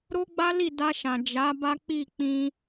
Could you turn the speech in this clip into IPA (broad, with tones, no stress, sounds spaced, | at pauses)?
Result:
ɾ o˦ ɡ͡b a˦ l i˦˨ d a˧ ʃ ã˨ d͡ʒ a˨˦ b a˦ k͡p i˦˨ k͡p ĩ˧